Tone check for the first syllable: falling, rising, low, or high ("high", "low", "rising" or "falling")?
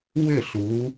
falling